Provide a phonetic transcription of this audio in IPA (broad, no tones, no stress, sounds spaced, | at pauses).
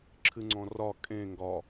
ǁʰ ɨ ŋ͡ǀ ɔ̃ r ɒ kʼ ẽ ŋ ɡ ɒ